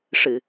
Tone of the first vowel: low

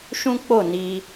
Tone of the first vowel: high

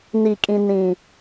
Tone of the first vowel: low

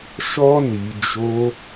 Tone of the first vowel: high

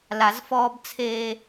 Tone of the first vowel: low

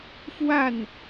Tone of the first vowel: falling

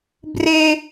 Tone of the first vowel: high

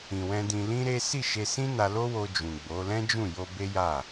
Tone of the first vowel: low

